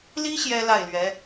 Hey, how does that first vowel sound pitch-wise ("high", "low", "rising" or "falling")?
high